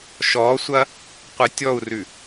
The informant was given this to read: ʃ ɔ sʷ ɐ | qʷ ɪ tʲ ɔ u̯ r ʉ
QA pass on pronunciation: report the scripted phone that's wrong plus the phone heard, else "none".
none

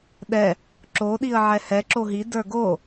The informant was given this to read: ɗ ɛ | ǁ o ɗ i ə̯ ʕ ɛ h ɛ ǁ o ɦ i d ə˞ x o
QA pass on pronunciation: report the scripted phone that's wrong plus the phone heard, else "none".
x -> ɡ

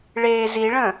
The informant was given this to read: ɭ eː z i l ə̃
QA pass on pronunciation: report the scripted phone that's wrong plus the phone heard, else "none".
l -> ɭ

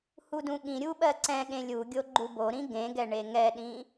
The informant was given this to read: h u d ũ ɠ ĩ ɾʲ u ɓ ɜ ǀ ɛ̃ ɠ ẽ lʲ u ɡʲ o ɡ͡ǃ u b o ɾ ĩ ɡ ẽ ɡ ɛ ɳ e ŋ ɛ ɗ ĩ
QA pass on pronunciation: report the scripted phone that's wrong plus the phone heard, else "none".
none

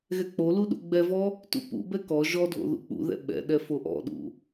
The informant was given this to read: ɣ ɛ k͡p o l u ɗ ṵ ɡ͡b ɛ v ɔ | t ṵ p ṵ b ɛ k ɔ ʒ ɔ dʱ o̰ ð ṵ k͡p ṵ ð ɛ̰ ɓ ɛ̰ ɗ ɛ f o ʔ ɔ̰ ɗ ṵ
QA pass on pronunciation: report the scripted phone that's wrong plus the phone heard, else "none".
none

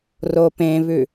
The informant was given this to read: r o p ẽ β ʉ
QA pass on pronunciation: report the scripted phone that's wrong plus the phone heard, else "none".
none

